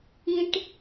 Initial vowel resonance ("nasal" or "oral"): nasal